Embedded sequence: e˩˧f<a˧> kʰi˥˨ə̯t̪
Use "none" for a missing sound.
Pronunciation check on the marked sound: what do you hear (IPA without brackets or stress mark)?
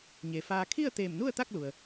aː˧